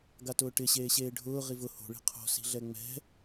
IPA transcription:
ɡ a t ʊː ʈ ɪ ɕ eː ɕ eː ɖʱ ʊː ʁ i v ʊ h o̤ ɭ i̤ qʰ o̤ s i̤ ɮ ɛ ŋ͡m ɛ̤

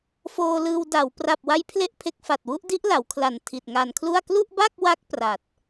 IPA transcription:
f oː˧ l ɯː˧ w d a˩˦ w p r a˨˩ p̚ w a˦˥ j pʰ l e˥˩ ʔ pʰ e˦˥ k̚ f a˨˩ t̚ w u˦˥ ʔ d i˦˥ ʔ l a˩˦ w kʰ l a˨˩ n tʰ i˨˩ t̚ ŋ a˧ n kʰ l u˥˩ a̯ k l u˥˩ ʔ b a˥˩ k̚ w a˦˥ k̚ p r a˨˩ t̚

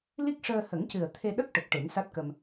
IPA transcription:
l i˦˥ k̚ ʂ əː˧ h ə˨˩˦ ŋ c ɨ˨˩ ə̯ t̪ʰ e˧ ɗ ə˦˥ k̚ ʈ ə˨˩ k̚ ʈ e˨˩˦ n s a˦˥ t̚ k ə˧ m

